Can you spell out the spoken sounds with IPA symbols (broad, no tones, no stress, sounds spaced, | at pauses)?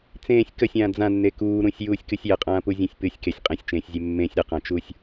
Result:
t͡s ẽː sʲ k ə sʲ ãː d͡z ã nː e k uː ɾ ũ sʲ j uː sʲ k ɨ sʲ j ə qʼ ãː p u zʲ ẽ sʲ p ɨ sʲ k e sʲ qʼ ẽ sʲ t͡ʃ ẽː sʲ zʲ e mː ẽ sʲ ɾ ə q ã t͡ʃ uː sʲ